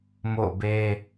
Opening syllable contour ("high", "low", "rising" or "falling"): falling